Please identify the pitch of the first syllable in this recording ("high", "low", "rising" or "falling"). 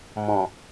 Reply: low